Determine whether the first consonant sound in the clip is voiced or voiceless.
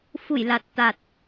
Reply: voiceless